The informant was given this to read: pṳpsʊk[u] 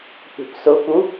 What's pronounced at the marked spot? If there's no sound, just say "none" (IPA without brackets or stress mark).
u